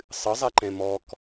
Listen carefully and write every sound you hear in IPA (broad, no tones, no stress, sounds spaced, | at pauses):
sˤ ɨ zˤ ɛ ǃ ɛ̃ m ɔ k